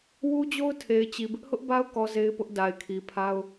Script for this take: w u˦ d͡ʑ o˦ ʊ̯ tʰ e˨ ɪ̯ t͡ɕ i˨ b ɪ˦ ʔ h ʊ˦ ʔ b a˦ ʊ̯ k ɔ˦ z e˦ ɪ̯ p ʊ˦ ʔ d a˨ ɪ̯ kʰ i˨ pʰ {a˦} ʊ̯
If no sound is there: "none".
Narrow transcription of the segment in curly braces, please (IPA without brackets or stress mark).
a˦